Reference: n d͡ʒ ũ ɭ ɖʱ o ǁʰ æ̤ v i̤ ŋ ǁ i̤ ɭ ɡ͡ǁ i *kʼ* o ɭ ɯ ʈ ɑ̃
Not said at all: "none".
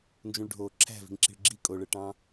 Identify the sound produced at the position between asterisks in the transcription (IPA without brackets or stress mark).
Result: kʼ